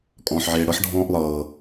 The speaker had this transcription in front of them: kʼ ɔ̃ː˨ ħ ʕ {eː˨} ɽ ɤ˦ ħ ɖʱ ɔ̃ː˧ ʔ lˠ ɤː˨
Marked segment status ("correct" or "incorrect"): correct